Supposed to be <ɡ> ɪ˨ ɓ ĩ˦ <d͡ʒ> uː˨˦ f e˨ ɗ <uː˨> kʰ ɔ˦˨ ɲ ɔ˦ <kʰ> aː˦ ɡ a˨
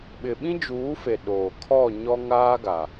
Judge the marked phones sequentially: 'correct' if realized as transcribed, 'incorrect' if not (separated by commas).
incorrect, correct, incorrect, incorrect